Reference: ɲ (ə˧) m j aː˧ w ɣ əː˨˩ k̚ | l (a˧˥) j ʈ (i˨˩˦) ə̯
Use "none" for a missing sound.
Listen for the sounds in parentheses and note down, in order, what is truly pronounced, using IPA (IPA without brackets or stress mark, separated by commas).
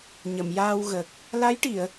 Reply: ə˨˩˨, a˧˥, i˨˩˨